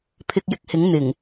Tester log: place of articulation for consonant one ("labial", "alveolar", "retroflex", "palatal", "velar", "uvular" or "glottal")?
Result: labial